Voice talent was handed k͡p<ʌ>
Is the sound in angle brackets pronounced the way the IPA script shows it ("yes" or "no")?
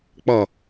yes